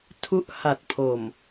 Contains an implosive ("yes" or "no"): no